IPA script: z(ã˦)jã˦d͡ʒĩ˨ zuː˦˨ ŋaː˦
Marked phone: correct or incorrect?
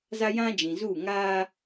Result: incorrect